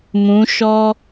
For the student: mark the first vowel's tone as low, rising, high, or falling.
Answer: rising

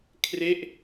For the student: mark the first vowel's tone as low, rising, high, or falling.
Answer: falling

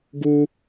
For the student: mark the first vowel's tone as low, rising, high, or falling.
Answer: high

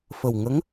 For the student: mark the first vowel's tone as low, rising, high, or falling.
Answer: low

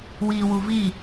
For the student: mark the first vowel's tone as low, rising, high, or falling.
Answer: low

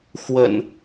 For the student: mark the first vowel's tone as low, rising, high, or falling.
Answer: low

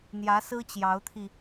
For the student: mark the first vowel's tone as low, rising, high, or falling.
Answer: rising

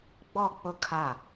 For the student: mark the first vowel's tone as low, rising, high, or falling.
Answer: falling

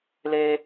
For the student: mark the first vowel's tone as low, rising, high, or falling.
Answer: high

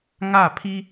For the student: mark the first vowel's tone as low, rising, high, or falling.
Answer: falling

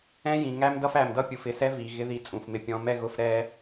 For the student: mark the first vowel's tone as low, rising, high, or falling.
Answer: high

